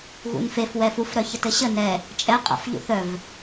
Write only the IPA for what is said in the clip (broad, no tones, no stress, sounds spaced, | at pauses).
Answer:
ɣ ṵ n f e f w ɛ f u f ɾ œ ç ə t ɘ ɕ ə n ɛ | t͡ʃʼ ɛ qʼ a̰ f ʎ ṵ θ œ v